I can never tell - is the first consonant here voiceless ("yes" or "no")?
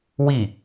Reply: no